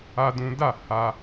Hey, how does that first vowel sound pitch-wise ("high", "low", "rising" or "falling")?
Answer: high